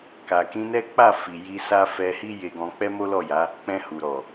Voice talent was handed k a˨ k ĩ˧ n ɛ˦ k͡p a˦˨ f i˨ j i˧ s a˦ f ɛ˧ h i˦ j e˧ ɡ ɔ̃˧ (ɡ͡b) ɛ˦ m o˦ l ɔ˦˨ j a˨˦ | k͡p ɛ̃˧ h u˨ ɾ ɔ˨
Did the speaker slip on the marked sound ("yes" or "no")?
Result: yes